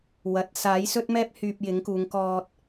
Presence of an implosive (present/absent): absent